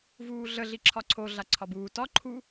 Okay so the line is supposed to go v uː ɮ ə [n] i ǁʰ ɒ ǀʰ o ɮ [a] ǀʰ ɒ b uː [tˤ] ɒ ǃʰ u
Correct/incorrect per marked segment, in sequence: incorrect: ɮ, correct, incorrect: t

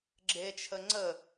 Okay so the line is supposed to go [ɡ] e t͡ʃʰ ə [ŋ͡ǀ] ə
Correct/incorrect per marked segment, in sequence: incorrect: ɡ͡ǁ, correct

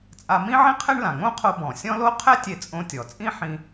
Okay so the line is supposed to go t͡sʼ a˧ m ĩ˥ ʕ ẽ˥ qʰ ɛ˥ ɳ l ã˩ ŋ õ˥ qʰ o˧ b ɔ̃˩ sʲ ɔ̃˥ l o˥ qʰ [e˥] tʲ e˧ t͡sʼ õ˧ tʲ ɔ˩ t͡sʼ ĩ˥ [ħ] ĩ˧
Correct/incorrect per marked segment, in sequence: incorrect: ɛ˥, correct

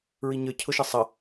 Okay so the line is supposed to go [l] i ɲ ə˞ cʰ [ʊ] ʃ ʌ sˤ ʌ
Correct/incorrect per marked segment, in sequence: incorrect: ɹ, correct

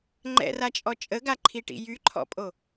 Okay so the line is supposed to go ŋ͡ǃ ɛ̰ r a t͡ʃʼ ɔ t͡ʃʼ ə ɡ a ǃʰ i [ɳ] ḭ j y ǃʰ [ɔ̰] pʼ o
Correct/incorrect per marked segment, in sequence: incorrect: ʈ, correct

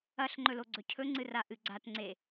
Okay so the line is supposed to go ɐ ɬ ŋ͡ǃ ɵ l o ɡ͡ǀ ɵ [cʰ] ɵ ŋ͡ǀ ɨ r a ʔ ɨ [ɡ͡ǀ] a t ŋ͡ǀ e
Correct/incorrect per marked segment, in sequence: correct, correct

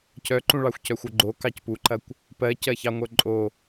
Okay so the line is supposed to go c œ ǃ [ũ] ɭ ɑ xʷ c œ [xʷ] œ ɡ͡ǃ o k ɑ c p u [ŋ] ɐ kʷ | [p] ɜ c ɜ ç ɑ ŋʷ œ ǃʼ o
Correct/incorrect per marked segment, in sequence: correct, correct, incorrect: ǃ, correct

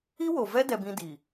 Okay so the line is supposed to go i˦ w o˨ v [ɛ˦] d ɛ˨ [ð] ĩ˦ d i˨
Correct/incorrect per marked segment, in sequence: correct, incorrect: b

